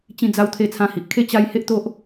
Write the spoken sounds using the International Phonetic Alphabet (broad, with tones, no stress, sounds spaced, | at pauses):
t͡ɕ ĩ˧ d͡z a˧ w t̪ʰ e˧ t͡sʰ ã˧ h i˨ ʔ kʰ e˥˧ t͡ɕ a˧ j h e˦ ʔ t̪ o˦ ʔ